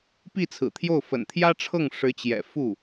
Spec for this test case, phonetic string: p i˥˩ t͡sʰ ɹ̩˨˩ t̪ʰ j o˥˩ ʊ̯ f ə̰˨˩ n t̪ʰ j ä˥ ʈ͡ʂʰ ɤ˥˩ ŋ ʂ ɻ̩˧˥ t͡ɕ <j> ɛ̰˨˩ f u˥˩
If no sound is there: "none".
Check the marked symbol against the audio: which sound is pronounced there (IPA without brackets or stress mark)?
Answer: j